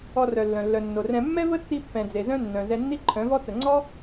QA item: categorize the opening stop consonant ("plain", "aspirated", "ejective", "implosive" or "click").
plain